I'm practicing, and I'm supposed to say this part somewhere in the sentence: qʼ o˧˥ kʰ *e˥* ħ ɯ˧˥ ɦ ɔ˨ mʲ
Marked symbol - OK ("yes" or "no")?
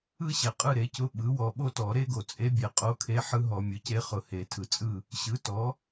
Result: no